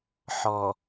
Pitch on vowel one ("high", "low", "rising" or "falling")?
low